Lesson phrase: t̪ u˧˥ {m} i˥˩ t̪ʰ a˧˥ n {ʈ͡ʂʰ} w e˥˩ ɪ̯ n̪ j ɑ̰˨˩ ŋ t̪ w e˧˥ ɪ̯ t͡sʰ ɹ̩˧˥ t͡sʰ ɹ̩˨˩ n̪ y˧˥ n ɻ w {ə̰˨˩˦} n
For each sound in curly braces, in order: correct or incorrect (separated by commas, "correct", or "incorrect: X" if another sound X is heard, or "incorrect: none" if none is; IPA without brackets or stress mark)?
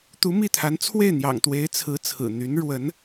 correct, incorrect: t͡sʰ, incorrect: ə˧˥